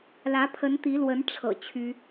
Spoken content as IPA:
l ä˧˥ pʰ ə˧˥ n t̪ i˧˥ l w ə˧˥ n ʈ͡ʂʰ ɤ̰˨˩ t͡ɕʰ y˥

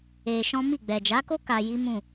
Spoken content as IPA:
e˧ ʃ ɔ̃˦ m i˦˨ ɡ͡b ɛ˨ d͡ʒ a˨˦ k o˦ k a˧ j i˦ m ũ˦˨

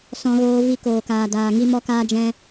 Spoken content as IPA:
s ɔ̃˧ ɣ oː˧ v i˧ k oː˨ k aː˨ d aː˨ ŋ i˧ m ɔ˧ k aː˧ d͡ʒ ɛ̃˧

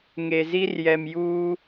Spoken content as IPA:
ŋ e˨ z i˦ r j ɛ˨ m j uː˦

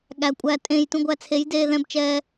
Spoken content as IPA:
ɠ æ˨ kʷʼ æ˧ tʼ ẽ˧ j t ũ˧ ɡʷ æ˧ t͡sʰ e˨˦ j d eː˧ ð ɛ̃˧ b t͡ʃ ɛː˧

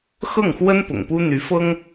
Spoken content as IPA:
x ɤ˥˩ ŋ x w ə˥ n p ʊ̰˨˩ ŋ p u˥ n̪ y˧˥ f ɤ˥ ŋ

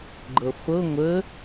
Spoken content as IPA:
ɡ͡ǃ ɤ χʷ ɤ ŋʷ ə

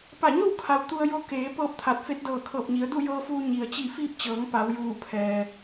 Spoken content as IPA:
p a˧˩ ɲ o˥˨ w kʰ a˩ w t̪ u˧ ə̯ j o˧˥ k eː˩˧ p ɤː˥˨ p̚ t̪ʰ a˧˩ t̚ f e˧˥ t̚ d ɤː˧˩ kʰ ɤː˧˩ p̚ ɲ i˩˧ ə̯ d u˥˨ j ɤː˧ f uː˧ ɲ i˩ ə̯ t͡ɕ i˧˩ f iː˧ p̚ t͡ɕ ɤː˩˧ ŋ p a˩˧ w j uː˧˩ pʰ ɛː˩

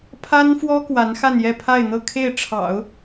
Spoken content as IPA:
pʰ a˥ n f w ɔ˥ k w a˧˥ n x a˥˧ n j ɛ˥˧ pʰ a˥˧ ɪ̯ n̪ ɤ˥˧ kʰ e˥˩ ɪ̯ ʈ͡ʂʰ ɑ̰˨˩˦ ʊ̯

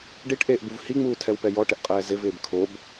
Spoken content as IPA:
ɖ i ʈ ʔ eː ʔ b u v h i ŋ͡m uː tʰ ɛ w p ɛ j ɔ ʈ ɪ ʔ qʼ ɛː z ɪ v ɪː b kʰ o b

